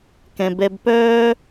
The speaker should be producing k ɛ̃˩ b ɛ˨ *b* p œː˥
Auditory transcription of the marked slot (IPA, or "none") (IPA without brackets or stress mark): b